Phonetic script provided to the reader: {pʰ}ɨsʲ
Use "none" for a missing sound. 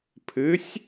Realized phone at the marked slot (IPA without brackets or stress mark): pʰ